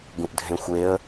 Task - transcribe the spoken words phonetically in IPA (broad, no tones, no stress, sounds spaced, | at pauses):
ɡ ũ ʔ dʱ ẽ xʷ e ə̯